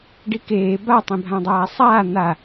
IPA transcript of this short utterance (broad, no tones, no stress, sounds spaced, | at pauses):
ɖ i k eː b a tˤ ĩ bʱ ã dˤ aː sˤ aː n̪ a